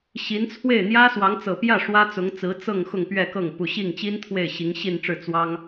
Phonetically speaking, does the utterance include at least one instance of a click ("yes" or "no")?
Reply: no